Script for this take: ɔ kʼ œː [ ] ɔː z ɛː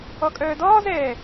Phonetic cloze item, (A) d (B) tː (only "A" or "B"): A